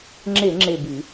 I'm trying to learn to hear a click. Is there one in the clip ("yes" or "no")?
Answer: yes